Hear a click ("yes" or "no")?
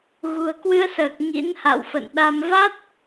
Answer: no